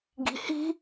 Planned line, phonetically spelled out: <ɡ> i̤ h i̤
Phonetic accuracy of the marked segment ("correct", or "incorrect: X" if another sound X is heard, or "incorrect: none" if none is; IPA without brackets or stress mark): correct